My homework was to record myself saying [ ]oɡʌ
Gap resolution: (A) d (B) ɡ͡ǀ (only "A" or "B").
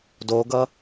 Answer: A